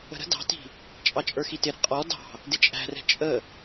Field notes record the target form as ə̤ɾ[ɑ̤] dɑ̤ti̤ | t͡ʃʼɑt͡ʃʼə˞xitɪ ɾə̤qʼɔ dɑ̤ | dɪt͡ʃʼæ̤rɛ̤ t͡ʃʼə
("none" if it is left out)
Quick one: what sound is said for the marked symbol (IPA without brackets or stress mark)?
ə̤